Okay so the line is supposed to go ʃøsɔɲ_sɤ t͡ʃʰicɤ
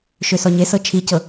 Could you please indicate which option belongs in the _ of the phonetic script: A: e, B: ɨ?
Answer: A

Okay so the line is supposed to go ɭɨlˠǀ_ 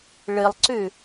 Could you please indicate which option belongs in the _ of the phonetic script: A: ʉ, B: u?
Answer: A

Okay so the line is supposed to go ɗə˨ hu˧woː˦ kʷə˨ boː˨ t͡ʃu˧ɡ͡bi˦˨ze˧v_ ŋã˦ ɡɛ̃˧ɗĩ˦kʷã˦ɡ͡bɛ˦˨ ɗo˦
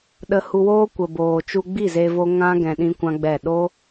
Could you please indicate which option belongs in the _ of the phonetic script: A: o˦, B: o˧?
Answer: B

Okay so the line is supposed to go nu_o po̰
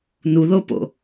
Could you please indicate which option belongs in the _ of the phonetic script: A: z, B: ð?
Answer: B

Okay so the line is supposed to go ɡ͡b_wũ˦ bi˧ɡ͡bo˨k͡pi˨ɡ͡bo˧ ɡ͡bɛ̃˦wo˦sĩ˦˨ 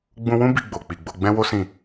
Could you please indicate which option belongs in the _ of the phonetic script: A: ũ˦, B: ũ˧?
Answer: B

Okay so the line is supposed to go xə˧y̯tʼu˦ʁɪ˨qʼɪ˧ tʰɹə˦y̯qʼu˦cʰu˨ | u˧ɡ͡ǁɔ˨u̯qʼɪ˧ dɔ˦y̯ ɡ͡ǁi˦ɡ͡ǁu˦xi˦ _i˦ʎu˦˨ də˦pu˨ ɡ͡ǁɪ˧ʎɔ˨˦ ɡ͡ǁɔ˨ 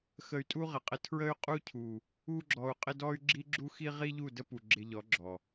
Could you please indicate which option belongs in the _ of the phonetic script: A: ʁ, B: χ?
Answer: A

